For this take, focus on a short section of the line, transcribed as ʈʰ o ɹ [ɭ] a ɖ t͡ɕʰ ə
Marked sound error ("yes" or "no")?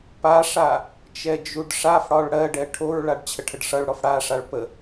no